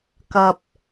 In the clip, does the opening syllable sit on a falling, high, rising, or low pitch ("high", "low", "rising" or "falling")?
low